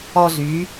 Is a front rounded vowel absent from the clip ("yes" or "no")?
no